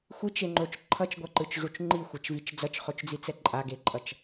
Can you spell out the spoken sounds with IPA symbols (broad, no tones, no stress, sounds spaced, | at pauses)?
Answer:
xʷ i t͡ʃ e ŋ͡ǃ o t͡ʃ ǃʰ ʌ t͡ʃ ɡʷ a ǃ ɯ t͡ʃ ʐ u t͡ʃ ŋ͡ǃ i xʷ ɛ t͡ʃ v i t͡ʃ d͡z ʌ t͡ʃ χ o t͡ʃ d͡z i t͡s ɛ ǃʼ a ɡ e ǃʼ ʌ t͡ʃ